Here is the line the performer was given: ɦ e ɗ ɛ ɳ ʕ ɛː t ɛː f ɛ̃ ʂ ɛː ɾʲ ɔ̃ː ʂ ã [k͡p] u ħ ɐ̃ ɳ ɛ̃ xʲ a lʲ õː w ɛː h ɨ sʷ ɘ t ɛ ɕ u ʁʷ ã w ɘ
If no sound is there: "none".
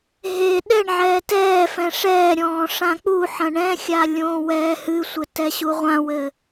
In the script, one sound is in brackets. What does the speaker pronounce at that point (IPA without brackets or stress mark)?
k͡p